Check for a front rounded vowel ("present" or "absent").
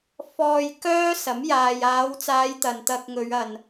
present